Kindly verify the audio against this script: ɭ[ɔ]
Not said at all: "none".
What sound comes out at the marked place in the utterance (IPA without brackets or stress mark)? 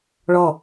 ɔ